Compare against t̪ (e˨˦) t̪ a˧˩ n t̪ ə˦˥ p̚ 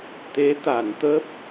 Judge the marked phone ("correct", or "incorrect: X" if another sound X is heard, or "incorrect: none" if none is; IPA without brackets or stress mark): correct